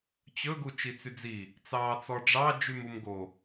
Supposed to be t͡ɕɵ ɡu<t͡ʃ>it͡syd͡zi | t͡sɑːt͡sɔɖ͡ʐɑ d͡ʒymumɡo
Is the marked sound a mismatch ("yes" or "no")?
no